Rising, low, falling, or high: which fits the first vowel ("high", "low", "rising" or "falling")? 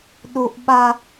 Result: high